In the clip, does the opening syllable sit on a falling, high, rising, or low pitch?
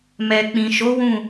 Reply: low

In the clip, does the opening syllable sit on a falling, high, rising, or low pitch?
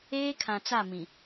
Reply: high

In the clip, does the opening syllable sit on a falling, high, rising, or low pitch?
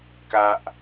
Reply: low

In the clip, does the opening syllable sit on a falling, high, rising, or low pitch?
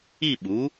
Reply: falling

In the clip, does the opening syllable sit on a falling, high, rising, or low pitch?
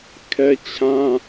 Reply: high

